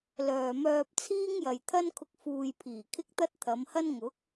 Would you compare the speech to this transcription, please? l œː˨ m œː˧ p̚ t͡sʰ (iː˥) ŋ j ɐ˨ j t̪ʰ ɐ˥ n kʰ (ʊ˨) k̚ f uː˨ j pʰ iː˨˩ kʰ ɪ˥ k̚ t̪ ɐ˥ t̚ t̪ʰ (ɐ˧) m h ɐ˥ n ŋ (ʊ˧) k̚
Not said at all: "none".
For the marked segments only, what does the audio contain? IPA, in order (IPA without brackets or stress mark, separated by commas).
iː˥, ʊ˧, ɐ˨˧, ʊ˨˥